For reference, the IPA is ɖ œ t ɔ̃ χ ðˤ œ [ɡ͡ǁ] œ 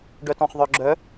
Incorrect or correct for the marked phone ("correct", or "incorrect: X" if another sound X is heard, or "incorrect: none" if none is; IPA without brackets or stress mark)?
correct